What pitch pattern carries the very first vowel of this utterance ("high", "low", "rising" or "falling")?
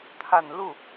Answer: low